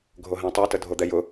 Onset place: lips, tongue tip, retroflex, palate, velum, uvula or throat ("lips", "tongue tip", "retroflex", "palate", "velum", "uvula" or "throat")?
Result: velum